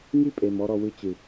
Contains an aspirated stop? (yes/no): no